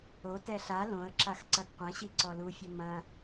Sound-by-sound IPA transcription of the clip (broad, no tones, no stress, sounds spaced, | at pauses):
o t ɛ ɬ a l õ ə̯ ǁ a x ǀ ɐ ɡ qʷ ɐ̃ ɕ i ǀ ɔ l u fʲ ɘ m ɐ̃